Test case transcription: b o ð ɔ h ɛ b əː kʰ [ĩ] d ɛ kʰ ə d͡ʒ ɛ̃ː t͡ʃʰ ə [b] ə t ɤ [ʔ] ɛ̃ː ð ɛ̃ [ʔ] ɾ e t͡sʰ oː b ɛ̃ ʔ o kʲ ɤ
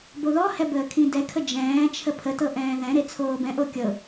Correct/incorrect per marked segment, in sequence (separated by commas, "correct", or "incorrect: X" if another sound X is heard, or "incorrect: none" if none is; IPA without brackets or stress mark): correct, incorrect: pʰ, correct, incorrect: none